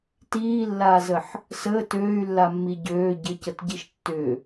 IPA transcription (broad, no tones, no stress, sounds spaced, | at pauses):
t iː lː aː z ə ħ | s əː t øː y̯ lː a mː i ɟ øː ɟ ɪ c ə t ɟ i ʃ tː ʏ